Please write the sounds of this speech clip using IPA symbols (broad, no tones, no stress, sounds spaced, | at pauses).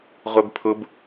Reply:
ʁʷ ɛ b pʰ ʊ b